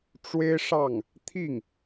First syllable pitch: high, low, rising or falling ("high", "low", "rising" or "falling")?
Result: high